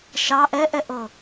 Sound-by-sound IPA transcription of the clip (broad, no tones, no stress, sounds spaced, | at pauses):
ʃ ɑ ʔ ɛ ʔ ɛ ʔ ɤ